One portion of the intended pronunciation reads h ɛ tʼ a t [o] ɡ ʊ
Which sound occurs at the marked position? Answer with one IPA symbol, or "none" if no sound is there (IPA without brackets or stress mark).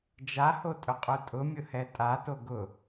o